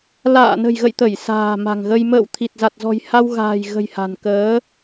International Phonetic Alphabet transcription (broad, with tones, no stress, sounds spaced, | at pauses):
l a̰ː˧˨ n ə̤˨˩ j ɣ ə̰˧˨ j t̪ ə˧˩ j s a̤ː˨˩ m a̤˨˩ ŋ ɣ ə˧ j m ə̰ː˧˨ w t̪ʰ i˨˩ t̚ z a˨˩ t̚ z ɔ̤˨˩ j h a˧ w ɣ a̤ː˨˩ j ɣ ə̤˨˩ j h a̤˨˩ n k əː˨˦